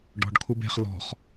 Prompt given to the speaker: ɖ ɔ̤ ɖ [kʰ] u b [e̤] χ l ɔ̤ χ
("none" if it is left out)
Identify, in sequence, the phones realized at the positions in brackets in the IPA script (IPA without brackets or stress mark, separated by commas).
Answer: kʰ, e̤